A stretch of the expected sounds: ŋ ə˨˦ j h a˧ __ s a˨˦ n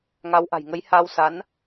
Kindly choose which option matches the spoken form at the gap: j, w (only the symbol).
w